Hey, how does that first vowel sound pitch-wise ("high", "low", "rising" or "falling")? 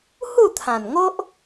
falling